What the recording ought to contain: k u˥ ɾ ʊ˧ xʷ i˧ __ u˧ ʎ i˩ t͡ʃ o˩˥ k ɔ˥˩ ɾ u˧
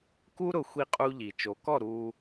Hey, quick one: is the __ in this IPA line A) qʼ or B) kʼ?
A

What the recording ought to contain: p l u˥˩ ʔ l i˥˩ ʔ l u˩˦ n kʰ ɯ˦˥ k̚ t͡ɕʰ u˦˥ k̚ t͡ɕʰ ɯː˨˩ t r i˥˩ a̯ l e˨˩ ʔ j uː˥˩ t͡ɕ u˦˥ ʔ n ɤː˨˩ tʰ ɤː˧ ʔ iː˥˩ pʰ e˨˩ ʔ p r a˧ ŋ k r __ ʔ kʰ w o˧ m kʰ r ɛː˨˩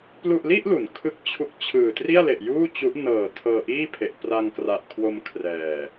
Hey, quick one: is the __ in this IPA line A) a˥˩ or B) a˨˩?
B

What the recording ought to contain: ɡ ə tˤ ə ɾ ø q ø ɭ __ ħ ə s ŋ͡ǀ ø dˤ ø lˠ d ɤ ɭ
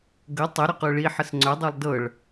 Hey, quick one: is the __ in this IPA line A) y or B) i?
B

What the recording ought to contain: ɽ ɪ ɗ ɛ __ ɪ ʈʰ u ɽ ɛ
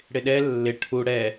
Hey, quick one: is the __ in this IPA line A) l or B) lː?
B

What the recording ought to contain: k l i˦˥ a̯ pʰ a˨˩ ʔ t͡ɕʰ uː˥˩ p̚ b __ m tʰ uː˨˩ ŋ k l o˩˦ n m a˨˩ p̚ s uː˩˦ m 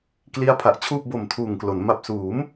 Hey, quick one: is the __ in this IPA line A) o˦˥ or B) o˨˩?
B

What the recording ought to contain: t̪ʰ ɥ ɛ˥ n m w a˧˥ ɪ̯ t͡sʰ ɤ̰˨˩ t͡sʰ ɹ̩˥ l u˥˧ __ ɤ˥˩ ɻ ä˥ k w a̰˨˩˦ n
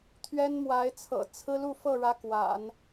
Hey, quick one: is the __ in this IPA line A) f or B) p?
A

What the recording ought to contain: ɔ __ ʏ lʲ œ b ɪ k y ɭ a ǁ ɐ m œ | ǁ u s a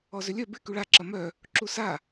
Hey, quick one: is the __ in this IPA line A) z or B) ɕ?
A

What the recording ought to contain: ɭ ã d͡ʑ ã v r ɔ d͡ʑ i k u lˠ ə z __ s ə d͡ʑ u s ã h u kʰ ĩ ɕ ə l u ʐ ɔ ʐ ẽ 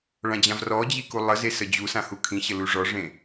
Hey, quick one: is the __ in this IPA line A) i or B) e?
B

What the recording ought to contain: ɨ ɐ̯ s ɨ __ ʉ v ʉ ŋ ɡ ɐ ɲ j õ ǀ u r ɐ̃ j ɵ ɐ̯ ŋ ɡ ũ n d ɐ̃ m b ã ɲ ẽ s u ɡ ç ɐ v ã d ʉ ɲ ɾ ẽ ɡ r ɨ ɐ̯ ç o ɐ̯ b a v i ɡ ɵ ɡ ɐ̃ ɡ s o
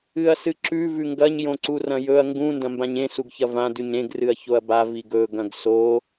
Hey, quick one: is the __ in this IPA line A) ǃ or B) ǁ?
B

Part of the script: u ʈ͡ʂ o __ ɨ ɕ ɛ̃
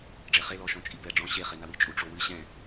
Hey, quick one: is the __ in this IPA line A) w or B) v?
A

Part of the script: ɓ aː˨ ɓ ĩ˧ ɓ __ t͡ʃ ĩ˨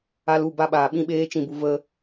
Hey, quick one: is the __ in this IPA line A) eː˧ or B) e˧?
A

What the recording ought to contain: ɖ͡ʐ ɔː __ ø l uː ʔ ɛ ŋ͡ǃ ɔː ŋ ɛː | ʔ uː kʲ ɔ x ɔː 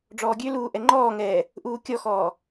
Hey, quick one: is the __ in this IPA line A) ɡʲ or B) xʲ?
A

